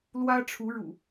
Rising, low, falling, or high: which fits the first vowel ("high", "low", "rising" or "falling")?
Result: high